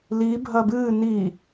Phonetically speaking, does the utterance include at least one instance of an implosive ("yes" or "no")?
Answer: no